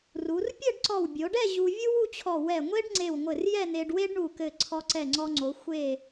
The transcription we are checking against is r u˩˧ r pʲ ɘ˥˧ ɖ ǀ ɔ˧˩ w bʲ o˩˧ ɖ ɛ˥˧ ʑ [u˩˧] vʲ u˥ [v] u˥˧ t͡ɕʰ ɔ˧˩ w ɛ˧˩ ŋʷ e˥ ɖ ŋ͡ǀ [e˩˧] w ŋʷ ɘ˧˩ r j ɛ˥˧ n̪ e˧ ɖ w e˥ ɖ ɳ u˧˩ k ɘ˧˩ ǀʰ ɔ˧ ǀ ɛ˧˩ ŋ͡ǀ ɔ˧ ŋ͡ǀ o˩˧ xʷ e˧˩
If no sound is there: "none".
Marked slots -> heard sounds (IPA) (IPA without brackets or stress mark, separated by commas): u˧, w, e˧˩